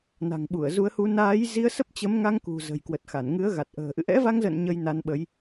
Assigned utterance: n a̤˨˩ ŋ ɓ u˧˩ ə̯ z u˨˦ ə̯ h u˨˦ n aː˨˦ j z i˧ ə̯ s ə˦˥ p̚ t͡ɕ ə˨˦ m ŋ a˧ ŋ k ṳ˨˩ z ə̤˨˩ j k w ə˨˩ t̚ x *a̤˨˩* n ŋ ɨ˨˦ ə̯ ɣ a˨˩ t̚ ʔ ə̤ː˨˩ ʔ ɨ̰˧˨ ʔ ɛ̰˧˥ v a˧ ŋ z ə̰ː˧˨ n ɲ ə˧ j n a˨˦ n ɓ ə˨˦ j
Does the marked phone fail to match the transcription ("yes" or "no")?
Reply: yes